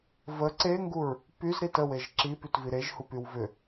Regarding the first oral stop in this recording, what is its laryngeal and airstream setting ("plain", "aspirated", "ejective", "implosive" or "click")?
click